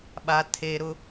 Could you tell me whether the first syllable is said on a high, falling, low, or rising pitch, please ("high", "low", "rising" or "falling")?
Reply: low